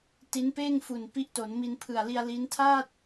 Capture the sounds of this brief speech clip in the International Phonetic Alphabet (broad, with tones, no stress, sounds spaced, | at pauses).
t i˦˥ n p eː˥˩ ŋ f u˨˩ n p i˦˥ ʔ t o˩˦ n m i˧ n pʰ ɯ˨˩ a̯ l i˧ a̯ l i˦˥ n tʰ aː˥˩ t̚